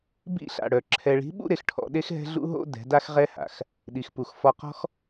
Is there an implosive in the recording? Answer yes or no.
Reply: yes